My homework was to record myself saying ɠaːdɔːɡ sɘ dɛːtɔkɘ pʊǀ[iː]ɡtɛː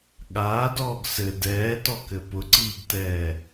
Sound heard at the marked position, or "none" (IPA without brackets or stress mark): iː